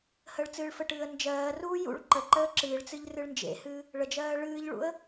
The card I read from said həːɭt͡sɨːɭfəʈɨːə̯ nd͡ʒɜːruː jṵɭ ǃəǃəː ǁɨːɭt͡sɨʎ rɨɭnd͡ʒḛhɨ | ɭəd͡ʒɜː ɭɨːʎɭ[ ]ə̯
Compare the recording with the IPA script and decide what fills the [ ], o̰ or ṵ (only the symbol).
ṵ